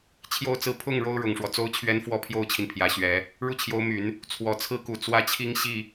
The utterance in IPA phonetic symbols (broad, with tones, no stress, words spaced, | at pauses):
t͡ɕʰjo˥˧ʊ̯t͡sɹ̩˥˧ pʰʊ˥˩ŋ ɻo˥ʊ̯ɻʊ˨˩ŋʂwɔ˦ t͡so˥ʊ̯t͡ɕʰɥɛ˥n fwɔ˥pʰjo˥ʊ̯t͡ɕʰi˨n pʰjä˧˥ ɕɥɛ˧˥ | ɻu˥˩t͡ɕʰjo˧˥ʊ̯my˨˩˦n | t͡sʰwɔ˨˩t͡sʰɹ̩˥ku˨˩ t͡swä˥t͡ɕʰi˥ŋ ɕi˥˩